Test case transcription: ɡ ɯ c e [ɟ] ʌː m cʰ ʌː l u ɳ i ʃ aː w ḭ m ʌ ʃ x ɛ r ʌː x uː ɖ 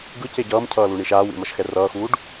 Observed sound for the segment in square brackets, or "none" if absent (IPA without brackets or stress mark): ɟ